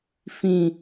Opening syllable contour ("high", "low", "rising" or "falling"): low